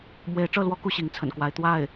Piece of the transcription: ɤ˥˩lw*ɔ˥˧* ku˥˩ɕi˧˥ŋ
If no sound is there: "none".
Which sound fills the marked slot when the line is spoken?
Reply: ɔ˥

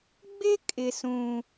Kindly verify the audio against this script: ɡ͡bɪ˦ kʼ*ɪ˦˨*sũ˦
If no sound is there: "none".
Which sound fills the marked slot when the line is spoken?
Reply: ɪ˦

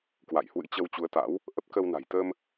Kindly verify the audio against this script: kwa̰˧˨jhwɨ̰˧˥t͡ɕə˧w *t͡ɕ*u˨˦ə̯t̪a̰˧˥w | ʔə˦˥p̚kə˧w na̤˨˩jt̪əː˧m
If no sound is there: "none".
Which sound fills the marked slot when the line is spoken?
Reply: t͡ɕ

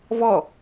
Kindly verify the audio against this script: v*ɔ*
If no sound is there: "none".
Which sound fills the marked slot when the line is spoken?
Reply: ɔ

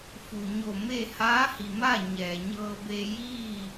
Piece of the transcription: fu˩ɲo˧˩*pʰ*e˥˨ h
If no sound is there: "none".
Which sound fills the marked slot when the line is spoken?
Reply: m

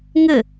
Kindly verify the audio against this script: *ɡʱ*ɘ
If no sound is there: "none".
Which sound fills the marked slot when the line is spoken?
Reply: ŋ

